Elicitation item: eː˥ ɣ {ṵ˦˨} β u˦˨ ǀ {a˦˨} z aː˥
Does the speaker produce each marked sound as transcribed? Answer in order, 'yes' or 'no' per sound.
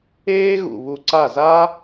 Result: yes, yes

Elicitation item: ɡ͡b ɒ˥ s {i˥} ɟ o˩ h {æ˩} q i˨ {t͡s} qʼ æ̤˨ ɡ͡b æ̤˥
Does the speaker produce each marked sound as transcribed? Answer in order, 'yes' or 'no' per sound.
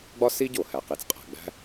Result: yes, yes, yes

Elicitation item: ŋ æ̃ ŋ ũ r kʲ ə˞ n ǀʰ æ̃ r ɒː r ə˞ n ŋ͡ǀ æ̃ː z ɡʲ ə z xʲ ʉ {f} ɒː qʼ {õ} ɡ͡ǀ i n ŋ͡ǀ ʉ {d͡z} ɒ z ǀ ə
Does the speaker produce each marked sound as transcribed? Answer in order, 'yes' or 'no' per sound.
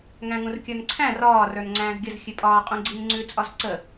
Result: no, no, no

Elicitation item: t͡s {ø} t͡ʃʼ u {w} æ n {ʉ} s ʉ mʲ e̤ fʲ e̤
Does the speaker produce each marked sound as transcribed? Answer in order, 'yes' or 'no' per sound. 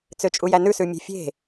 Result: yes, no, yes

